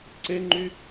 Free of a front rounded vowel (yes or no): no